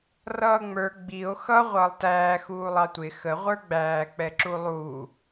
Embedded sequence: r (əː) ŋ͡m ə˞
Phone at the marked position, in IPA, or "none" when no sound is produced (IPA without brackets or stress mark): ʌː